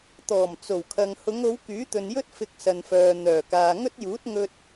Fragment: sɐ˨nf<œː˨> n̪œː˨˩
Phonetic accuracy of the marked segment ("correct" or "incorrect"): correct